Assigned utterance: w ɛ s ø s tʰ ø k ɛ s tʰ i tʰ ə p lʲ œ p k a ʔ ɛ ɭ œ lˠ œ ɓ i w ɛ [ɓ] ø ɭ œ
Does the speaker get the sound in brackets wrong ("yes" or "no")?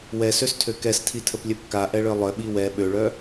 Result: no